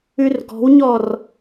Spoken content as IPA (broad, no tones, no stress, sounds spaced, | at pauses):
ʉ r ɡ ɔ̤ w ɲ ɔ r